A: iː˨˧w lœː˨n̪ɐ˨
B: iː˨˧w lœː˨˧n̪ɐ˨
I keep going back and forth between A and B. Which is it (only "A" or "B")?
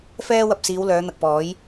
B